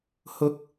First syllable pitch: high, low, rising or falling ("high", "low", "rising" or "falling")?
rising